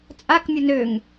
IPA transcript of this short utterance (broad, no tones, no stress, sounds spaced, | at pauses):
t͡sʼ a k mʲ ə n ø ŋ